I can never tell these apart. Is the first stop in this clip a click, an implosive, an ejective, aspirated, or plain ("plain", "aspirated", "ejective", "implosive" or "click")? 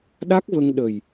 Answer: implosive